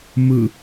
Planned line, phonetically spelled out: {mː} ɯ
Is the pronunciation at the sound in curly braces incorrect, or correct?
incorrect